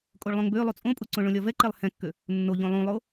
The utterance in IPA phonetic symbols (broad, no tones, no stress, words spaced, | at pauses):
kʼoɭlˠõŋbølˠu t͡sʼõpʼuǀõ ɭõlʲɒvɛǃɛlˠ hɛ̃kːø | nːoʎõ lˠũlˠo